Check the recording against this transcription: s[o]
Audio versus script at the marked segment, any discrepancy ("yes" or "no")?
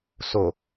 no